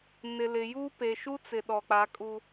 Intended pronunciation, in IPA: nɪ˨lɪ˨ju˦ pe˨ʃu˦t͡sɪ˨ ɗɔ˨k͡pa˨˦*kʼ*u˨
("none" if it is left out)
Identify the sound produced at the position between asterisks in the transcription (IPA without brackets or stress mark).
kʼ